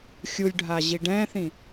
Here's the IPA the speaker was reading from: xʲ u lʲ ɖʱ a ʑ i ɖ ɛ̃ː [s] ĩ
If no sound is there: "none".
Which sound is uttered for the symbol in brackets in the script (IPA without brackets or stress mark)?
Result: θ